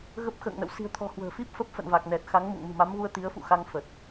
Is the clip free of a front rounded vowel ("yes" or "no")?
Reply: yes